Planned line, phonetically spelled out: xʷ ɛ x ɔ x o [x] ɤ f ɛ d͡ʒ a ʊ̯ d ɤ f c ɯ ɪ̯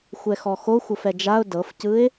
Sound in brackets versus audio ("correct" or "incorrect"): incorrect